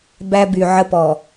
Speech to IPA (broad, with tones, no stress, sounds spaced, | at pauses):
b æ˦ b y˨ ʕ ə˦ p ɔ˨